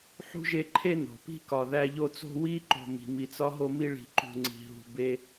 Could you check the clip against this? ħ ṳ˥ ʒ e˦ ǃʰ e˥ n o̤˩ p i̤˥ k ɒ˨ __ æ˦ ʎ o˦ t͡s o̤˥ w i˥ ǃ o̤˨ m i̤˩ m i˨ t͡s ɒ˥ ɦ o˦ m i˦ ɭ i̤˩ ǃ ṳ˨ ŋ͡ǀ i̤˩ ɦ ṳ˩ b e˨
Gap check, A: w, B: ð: B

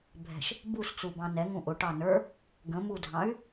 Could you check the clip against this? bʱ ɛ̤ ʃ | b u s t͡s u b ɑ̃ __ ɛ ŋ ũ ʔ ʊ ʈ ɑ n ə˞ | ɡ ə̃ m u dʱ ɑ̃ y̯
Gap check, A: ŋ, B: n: B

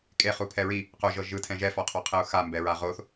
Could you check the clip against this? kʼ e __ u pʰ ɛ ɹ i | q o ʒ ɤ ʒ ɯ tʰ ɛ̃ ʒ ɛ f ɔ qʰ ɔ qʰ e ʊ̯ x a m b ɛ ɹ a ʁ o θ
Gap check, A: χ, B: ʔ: A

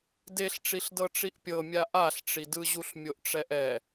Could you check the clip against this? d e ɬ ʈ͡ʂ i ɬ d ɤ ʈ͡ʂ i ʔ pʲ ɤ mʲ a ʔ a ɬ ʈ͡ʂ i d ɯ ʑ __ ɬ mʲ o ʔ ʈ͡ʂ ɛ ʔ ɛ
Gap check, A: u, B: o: A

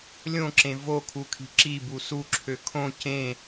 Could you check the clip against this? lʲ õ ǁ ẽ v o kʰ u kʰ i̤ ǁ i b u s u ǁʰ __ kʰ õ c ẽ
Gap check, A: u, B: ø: B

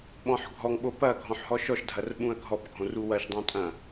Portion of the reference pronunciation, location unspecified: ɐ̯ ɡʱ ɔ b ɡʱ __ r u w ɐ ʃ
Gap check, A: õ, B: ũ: A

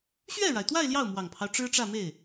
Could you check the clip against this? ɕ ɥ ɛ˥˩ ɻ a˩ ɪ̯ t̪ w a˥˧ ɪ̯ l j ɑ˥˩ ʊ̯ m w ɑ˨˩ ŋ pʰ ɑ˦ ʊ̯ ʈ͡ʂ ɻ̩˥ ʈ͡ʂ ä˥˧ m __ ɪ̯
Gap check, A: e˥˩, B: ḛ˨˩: A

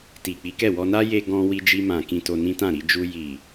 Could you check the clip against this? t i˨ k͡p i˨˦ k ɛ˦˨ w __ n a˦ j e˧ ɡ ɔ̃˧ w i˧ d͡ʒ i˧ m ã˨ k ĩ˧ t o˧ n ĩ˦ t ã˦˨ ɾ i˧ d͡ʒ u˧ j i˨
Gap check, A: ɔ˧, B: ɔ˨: A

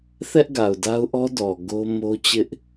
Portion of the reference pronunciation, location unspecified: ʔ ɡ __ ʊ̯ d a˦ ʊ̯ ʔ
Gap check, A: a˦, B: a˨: B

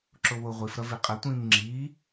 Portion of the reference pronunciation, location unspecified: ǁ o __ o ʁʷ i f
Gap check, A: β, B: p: A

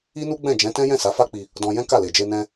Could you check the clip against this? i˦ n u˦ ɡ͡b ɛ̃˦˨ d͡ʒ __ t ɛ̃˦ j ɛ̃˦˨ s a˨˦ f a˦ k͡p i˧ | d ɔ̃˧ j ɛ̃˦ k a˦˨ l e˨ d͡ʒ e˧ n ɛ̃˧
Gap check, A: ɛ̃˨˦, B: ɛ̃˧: A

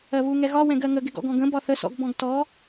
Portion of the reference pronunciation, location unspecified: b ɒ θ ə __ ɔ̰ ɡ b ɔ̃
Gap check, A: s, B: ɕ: A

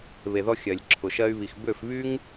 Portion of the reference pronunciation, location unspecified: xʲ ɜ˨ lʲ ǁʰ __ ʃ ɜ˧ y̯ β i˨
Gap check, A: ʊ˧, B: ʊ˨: B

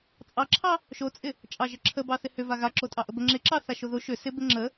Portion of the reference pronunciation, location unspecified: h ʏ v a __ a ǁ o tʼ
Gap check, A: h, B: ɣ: B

